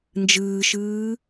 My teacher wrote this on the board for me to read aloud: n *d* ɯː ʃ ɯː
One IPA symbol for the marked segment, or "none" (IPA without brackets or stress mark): d͡ʒ